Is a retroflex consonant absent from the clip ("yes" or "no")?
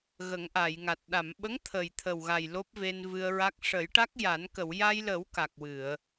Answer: no